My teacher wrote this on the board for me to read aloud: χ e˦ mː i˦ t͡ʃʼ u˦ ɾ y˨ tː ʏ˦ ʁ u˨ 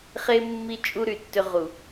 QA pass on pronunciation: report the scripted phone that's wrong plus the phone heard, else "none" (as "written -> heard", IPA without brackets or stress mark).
none